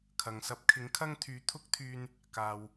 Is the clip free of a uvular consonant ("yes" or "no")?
yes